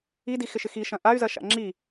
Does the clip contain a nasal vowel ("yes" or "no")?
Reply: yes